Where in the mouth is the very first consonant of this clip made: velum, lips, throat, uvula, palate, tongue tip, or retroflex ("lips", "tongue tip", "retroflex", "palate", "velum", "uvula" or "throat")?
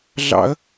tongue tip